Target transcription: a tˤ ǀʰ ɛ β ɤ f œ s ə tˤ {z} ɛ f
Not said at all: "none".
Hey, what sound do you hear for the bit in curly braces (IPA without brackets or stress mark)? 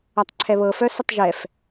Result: ʒ